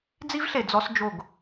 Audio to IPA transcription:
d͡z i˦ v ɬ e˨ d͡z ɔ˦ s d͡ʒ o˦˨ ɡ

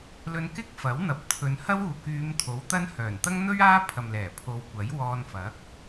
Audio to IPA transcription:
l ɵ˧ n k ɪ˥ k̚ f ɐ˨˥ w n̪ ɐ˨˥ p̚ t̪ʰ ɵ˨˧ n h ɐ˥ w uː˨ k yː˨˧ m t̪ʰ o˨˥ w t̪ ɐ˧ n h œː˨˩ n t̪ ɐ˥ ŋ n̪ ɵ˥ ɥ aː˥ pʰ ɐ˨ m l ɛː˨˩ pʰ o˨˧ w kʷ ɐ˨˥ j w ɔː˧ n f ɐ˨˥ k̚

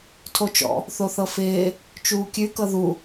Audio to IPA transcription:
tʰ o t͡ʃ ɔ̰ | θ o θ ɤ f ɪː | t͡ʃ uː kʲ ʉ k ɤ ð u

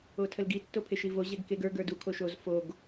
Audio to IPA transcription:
o tʰ ə l ɡ i tː o pʰ e ʃ i v o ʑ e ɡ k e ɡ ə˞ ɡ ə˞ d u kʰ o ʃ o z f o ɡ

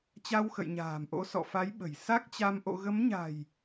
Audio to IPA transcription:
t͡ɕ a˧ w x ə̰˧˨ j ɲ a̤ː˨˩ m ʔ o̰˧˥ s ɔ̰˧˨ f a˨˦ j ɓ ə̤˨˩ j s a˦˥ k̚ t͡ɕ a˧ m ʔ o̰˧˨ ɣ ə˨˦ m ɲ a̤˨˩ j

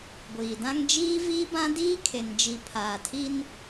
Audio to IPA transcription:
ɡʷ iː˨ d ã˦ ŋ d͡ʒ iː˦ v iː˦ b ã˦ d iː˦ kʰ e˨ n d͡ʒ i˨ pʰ aː˨ tʰ i˦ n

